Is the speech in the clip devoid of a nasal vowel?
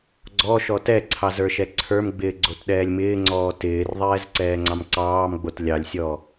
yes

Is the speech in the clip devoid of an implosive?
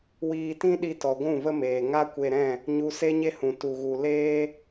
no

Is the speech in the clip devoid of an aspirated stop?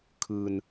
no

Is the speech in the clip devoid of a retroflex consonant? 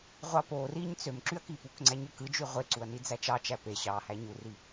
yes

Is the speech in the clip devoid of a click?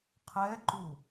no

